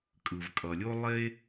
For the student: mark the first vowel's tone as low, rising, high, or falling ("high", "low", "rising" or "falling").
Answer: low